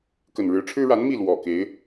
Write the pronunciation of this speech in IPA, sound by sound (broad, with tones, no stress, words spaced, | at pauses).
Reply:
kə˨˩nɻɻ̩˨˦ʈ͡ʂʰɻ̩˦ ɻa˨˦n mi˥˨ lwɔ˨˩ke˨˦ɪ̯